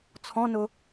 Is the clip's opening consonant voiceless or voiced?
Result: voiceless